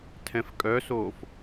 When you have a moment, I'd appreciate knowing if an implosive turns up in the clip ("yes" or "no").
no